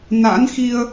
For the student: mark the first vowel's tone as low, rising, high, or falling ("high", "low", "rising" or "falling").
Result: rising